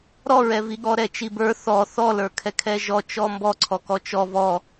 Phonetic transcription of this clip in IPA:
ɾ ɔ ɹ ɛ v i ɠ ɔ ɾ ɛ t͡ʃ i b ə˞ θ ɔ θ ɔ l ə˞ kʰ ɛ kʰ ɛ ʒ ɔ t͡ʃ ɔ m b ɔ ǀʰ ɔ k ɔ t͡ʃ ɔ v ɔ

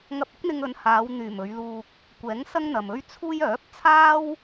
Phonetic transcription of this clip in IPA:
ŋ ɐ˧ p̚ ɪ˥ k̚ n̪ ɪ˧ ŋ ɵ˨˧ n h aː˨˧ w n̪ yː˨˩ m ɵ˨˧ ɥ l uː˧ k̚ | kʷ ɛː˨˥ ŋ s ɐ˥ ŋ n̪ ɐ˨ m ɵ˥ ɥ t͡sʰ uː˥ j œː˨˥ p̚ t͡sʰ aː˥ w

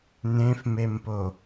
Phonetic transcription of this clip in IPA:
n̪ ẽ f m e m p o

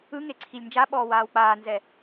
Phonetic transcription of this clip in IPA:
ɯ ŋ e ǀʰ i lʲ n d͡ʒ a ɓ ɔː w aː w k͡p aː n z ɛ

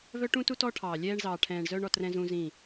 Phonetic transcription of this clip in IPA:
v œ˦ ʈ ũ˦ t u˦ t ɔ˦ ʈʰ ɑː˨ lʲ ɛː˧ ɳ z ɑː˨ ʈʰ ɛ̃ː˨ ɳ z œ˧ ɳ ɔ˧ t r ɛ̃˦ z ũ˦ z ĩ˦˨

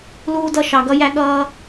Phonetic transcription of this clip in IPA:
l uː˦ d ʌ˦ ʃ ɑ˧ ɡ ʌ˦ j æ˦ ɠ ʌː˦

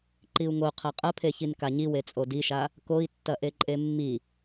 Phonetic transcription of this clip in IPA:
ǃ i u̯ ŋ o qʰ a qʼ ɐ pʰ e ç i n k a ɲ i w e t͡sʼ o d i ʃ a | k o i̯ tː ɐ ʔ e ǃʼ e mː i

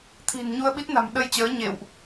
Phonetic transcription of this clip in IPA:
t̪ʰ i̤˨˩ n ɲ u˧ ə̯ ɓ i˦˥ t̚ n a̤˨˩ m ɗ ə˧ j t͡ɕ əː˨˦ ɲ ḛ˧˨ w ʔ

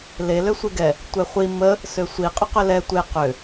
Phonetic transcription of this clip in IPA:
l e l ø sʷ e ɡ ɛ | tʷ ɛ χʷ i m ə | s ø sʷ i qʼ ʏ q ʏ l ɛ tʷ e q ʏ

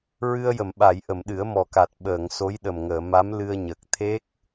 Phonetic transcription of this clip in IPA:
ɹ ɨ˧ ə̯ j ə˨˩˨ m ɓ a˨˩˨ j ʔ ə˨˩˨ m ɗ ɨ˨˩˦ ə̯ m ɔ˨˩ k a˨˩ t̚ ɓ əː˨˩˨ ŋ s o˧˥ j ɗ ə˨˩ m ŋ əː˨˩˨ m a˧˥ m l ɨ˧ ə̯ ɲ əː˨˩ k̚ t̪ʰ e˦˥ k̚

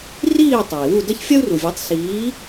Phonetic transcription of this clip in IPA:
r iː˥˩ tˤ a˩ i̯ w u˥˩ d ɐ˥ ç fʲ ɐ˥ u̯ r u˩ vʲ e˩˥ tˤ s iː˩˥

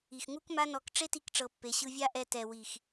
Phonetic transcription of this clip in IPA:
i˨ x ŋ u˦ k m a˦ n ɔ˧ k ʈ͡ʂ e˦ t i˧ k ʈ͡ʂ ɤ˨ pː e˨ ɕ ɯ˧ vʲ a˦ ʔ ɛ˧ t ɛ˨ w i˨ x

